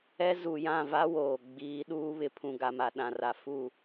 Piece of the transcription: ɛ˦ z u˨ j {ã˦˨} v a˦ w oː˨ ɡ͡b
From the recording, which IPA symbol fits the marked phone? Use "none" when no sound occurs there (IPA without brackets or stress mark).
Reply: ã˦˨